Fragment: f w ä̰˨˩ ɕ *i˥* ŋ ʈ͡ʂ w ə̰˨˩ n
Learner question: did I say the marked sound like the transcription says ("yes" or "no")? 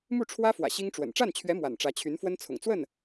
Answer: yes